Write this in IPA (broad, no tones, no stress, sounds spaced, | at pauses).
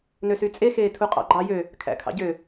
n ø s y t͡sʼ e x eː tʰ u qʼ ɑ̰ ɡ͡ǃ ɑ j ø | kʰ æ̰ kʰ ɑ̰ ɟ ø